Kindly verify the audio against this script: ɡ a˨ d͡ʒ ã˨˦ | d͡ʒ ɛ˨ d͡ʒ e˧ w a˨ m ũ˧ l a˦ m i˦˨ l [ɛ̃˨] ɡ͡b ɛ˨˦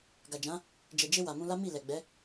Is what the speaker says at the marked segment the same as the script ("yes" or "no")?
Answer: no